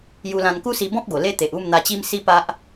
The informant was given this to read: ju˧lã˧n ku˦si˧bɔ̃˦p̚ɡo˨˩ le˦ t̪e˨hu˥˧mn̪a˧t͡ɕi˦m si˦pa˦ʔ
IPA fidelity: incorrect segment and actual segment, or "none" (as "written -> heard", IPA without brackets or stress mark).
h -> ʔ